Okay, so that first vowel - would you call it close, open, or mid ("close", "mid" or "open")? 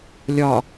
open